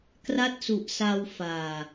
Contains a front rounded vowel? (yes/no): no